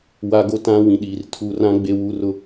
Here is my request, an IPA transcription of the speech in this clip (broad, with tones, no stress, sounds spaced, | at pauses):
w a˦ ɡ o˦ t ã˦ w ĩ˨ ɗ iː˨ r tʰ u˨ r ã˦ ɡ͡b e˦ w u˦ r ʊ˦